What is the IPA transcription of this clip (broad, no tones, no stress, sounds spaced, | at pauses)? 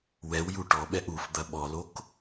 w ɛ w j u ʈ ɔ ɓ ɛ ʔ u f d̪ ɐ ɓ ɔ l o k